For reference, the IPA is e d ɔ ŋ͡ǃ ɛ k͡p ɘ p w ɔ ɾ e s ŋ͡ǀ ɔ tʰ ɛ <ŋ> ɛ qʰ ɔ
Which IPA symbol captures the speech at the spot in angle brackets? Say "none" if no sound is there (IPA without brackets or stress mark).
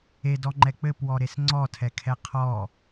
kʰ